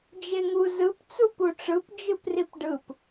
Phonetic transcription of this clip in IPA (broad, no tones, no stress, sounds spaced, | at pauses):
d͡ʒ e ŋ u z ɯ p t͡s u p u ʈ͡ʂ ɯ p d͡ʒ ɯ p r i p ɖ ɯ p